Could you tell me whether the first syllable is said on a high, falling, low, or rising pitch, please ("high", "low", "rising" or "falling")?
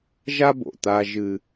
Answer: high